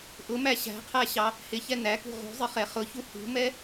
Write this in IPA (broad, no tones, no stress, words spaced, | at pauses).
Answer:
ʔʊmæ ɕæ̤qʰæɕɑ | hɪçɛ nækṳ ʁṳzˤɪχɛ χʊçu hṳmɛ